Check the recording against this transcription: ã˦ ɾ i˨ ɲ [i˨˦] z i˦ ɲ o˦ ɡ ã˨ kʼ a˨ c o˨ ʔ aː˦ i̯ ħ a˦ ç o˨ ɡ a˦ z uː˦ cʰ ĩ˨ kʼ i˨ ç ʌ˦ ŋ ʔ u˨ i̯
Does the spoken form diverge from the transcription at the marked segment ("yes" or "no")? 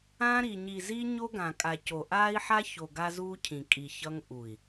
yes